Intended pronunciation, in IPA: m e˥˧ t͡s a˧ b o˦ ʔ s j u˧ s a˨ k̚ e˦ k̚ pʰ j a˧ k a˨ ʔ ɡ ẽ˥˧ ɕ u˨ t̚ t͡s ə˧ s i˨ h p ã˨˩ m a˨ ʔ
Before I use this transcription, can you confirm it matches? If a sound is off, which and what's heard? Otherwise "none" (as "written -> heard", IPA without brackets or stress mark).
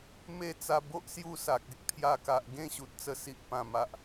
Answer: h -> ʔ